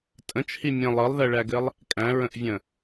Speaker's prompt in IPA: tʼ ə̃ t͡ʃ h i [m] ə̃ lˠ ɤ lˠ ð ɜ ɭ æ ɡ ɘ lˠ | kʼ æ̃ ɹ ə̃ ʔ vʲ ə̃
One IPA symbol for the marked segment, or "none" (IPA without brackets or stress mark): mʲ